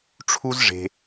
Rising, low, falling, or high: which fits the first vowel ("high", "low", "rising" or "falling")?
high